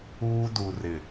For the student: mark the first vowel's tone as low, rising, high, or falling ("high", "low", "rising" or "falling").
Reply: high